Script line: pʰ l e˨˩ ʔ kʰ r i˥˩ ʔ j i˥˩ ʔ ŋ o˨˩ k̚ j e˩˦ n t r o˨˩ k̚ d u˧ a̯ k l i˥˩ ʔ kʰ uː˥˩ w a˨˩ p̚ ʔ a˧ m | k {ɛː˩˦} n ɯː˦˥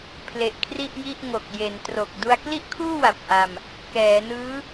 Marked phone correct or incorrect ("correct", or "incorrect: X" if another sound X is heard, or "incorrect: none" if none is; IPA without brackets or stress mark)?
correct